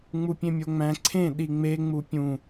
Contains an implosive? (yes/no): yes